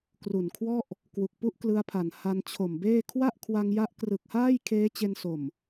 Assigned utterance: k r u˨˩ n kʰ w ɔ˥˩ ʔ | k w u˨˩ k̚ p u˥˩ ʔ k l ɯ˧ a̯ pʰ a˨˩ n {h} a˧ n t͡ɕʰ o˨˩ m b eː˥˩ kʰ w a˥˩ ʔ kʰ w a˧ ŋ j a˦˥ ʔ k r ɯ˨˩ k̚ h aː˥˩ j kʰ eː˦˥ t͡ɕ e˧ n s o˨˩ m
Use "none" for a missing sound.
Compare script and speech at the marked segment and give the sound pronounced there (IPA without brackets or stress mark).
h